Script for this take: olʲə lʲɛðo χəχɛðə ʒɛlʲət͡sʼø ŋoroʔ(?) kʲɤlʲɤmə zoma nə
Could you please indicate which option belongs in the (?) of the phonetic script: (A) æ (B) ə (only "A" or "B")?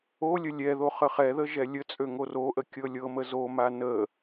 B